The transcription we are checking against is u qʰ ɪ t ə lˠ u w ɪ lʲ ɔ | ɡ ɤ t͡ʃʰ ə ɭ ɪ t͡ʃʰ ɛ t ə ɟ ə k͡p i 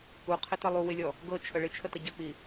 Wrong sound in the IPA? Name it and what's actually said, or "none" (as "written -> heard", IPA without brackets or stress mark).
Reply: ɛ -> ə